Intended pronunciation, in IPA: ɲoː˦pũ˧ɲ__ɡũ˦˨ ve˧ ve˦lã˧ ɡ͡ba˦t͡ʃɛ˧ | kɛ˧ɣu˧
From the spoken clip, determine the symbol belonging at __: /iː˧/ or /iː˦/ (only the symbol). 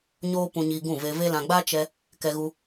iː˧